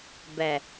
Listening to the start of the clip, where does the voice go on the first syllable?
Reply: low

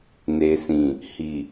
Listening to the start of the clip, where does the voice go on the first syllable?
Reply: low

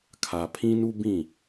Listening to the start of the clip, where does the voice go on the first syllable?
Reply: low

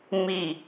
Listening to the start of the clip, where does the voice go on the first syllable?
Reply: falling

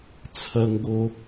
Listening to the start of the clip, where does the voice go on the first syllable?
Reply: low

